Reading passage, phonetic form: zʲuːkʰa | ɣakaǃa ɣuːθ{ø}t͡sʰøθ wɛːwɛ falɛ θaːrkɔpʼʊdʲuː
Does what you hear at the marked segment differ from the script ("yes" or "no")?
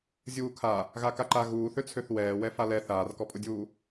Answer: no